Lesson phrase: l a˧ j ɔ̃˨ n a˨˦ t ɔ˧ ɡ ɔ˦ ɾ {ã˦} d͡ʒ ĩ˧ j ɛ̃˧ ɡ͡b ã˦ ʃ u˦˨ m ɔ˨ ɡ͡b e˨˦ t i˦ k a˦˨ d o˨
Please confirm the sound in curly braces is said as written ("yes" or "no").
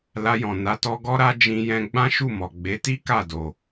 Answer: no